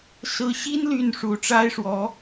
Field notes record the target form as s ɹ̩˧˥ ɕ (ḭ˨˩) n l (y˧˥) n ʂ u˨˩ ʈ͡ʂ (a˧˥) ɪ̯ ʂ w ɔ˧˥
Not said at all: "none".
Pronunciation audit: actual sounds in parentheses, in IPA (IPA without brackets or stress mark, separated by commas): i˥, y˥˩, a˥